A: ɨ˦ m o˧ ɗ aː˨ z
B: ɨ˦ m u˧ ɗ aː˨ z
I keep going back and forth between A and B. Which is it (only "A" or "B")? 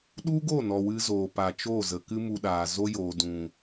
B